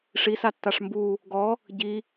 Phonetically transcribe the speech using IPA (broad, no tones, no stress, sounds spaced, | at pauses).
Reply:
ʂ i s a tː a ʂ m b u | ɡ ɔ | ɟ i